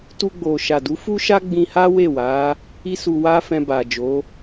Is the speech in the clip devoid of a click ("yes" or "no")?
yes